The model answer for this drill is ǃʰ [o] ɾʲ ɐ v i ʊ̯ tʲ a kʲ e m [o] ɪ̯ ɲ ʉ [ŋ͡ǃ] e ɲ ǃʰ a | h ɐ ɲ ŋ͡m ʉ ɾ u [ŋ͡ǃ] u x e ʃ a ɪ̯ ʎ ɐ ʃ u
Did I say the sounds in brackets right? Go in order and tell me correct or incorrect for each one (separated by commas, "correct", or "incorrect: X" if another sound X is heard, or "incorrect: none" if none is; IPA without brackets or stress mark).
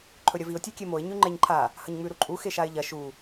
incorrect: ɵ, correct, correct, incorrect: ǃʼ